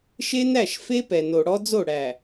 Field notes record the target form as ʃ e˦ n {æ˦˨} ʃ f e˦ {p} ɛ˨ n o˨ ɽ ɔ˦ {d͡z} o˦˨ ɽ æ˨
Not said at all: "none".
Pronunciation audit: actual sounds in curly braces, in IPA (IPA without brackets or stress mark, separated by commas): æ˦˨, p, d͡z